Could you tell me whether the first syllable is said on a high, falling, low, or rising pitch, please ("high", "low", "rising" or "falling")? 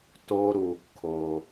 high